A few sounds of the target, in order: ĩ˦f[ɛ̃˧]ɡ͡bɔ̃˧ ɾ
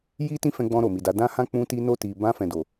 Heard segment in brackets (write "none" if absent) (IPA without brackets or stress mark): ɛ̃˧